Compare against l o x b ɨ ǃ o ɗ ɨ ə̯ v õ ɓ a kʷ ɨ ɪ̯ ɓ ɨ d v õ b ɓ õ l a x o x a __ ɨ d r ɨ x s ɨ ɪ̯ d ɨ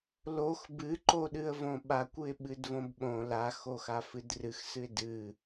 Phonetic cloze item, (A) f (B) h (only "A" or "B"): A